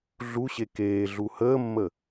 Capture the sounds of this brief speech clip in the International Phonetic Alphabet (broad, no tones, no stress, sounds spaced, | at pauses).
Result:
ɮ u ɕ e k eː ɮ u h əː mː ə